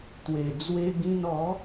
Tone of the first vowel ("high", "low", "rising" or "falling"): low